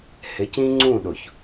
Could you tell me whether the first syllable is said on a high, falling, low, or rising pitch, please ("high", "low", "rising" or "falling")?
rising